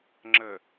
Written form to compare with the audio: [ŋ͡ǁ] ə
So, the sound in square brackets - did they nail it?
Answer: yes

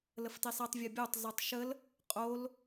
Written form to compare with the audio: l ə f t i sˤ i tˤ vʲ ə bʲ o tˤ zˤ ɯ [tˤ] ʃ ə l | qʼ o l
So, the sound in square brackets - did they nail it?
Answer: yes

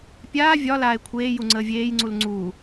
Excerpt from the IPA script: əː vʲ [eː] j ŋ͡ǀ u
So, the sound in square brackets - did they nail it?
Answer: yes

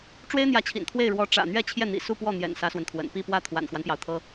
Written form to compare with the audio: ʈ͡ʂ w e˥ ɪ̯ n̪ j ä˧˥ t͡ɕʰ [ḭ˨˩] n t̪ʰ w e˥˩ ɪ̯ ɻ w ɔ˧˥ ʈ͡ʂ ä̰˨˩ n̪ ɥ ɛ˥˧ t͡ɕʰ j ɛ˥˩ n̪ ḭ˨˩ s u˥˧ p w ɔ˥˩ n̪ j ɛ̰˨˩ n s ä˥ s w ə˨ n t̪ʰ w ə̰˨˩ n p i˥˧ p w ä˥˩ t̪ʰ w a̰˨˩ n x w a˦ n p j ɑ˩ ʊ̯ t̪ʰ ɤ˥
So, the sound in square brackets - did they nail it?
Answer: yes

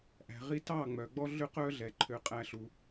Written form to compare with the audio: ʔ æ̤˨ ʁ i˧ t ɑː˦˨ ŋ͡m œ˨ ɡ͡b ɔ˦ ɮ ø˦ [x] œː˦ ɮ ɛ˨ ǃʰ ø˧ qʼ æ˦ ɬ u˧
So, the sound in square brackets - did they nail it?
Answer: no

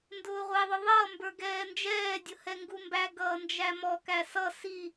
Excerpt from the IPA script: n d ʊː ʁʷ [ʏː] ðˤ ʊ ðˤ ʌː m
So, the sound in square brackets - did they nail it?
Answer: no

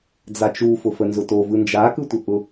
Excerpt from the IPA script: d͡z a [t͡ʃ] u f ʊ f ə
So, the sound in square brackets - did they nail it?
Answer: yes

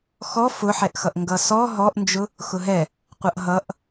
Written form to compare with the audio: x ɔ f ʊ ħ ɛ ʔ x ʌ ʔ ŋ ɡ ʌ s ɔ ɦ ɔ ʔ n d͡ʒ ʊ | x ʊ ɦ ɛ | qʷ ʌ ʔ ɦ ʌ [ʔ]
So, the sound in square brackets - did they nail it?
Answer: yes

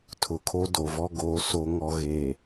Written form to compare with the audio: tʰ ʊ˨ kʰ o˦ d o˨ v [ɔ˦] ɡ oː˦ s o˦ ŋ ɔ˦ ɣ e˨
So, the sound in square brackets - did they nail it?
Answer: yes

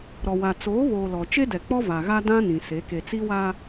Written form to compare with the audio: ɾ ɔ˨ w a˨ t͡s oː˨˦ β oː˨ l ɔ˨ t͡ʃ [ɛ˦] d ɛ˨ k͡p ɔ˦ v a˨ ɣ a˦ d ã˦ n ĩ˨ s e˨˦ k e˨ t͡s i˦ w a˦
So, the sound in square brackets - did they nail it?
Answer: no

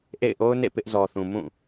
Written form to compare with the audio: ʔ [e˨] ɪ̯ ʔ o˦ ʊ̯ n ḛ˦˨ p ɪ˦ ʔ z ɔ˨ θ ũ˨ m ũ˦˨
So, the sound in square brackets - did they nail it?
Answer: no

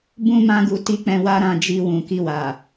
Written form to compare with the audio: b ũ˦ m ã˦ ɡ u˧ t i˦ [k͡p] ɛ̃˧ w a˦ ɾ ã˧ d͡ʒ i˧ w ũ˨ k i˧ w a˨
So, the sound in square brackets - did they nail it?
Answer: yes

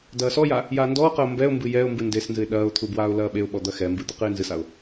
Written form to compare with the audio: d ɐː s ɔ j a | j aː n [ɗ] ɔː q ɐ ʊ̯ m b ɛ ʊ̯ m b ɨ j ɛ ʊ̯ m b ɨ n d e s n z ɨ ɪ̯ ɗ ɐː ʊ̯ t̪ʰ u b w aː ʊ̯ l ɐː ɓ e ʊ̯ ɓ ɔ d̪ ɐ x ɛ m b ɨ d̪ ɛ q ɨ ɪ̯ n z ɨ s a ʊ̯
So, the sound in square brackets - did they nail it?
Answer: no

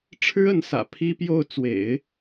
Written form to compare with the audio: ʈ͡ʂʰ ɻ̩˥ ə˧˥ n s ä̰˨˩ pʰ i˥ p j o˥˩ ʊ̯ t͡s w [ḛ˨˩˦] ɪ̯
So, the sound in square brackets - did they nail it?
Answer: yes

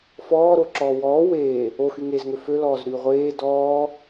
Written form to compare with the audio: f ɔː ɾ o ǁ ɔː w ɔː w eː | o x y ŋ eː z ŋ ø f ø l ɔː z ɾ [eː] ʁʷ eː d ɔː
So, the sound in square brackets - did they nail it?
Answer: no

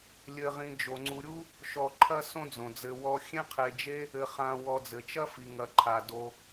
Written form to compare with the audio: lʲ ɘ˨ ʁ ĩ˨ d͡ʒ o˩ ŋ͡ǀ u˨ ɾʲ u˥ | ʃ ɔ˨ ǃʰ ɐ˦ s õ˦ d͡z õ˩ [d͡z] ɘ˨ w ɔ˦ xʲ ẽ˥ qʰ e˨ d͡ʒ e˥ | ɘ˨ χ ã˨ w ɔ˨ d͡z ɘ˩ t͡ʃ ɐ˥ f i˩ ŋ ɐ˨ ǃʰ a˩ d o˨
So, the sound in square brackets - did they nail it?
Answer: yes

